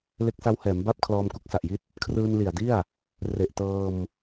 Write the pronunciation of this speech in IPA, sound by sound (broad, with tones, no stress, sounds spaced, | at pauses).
l e˦˥ k̚ s a˦˥ w h ɛː˩˦ m b a˥˩ p̚ kʰ l ɔː˧ m k u˦˥ k̚ s a˨˩ ʔ j i˥˩ t̚ | kʰ r ɯː˧ n l i˨˩ a̯ d i˥˩ a̯ | r e˨˩ ʔ t ɤː˧ m